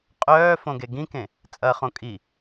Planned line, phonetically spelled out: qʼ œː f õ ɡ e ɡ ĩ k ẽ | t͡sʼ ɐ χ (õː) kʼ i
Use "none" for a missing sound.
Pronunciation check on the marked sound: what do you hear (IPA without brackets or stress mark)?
õ